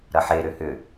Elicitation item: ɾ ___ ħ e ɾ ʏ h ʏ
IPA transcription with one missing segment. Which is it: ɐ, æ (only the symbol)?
ɐ